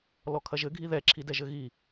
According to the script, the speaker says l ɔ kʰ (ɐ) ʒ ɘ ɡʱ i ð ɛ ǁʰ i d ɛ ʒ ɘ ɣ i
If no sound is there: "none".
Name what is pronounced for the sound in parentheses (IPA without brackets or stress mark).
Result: ɐ